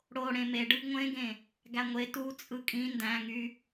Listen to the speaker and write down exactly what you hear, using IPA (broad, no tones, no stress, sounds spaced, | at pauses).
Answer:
ɽ o ɽ ẽ m e ɖ ɯ ɡ ŋʷ ẽ ɡ ẽ | ɡ æ ŋʷ e t u t͡sʼ ɯ kʼ ĩ n d æ̃ ŋ y